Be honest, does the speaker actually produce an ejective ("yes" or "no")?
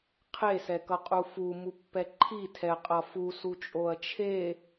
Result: yes